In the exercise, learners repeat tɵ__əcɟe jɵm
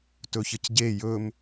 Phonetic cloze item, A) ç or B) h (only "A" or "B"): A